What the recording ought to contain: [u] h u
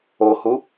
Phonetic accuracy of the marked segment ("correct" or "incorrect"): incorrect